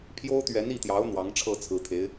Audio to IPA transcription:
pʰjo˥ʊ̯t̪ɥɛ˧˥ni˥˩t̪jɑ˧˥ʊ̯ n̪wɑ˧˥ŋʈ͡ʂʰɤ˥˩t͡sʰɹ̩˧˥t̪ʰe˧˥ɪ̯

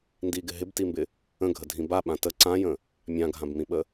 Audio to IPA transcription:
ndiɡɪ ɦɪbtimbɪ | ə̃ɡʱədʱĩ baɓã tə ǀãjə̃ | mʲãɡʱãbmĩɓə

